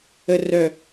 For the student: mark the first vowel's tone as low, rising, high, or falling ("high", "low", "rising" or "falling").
low